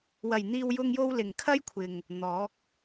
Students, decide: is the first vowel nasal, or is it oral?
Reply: oral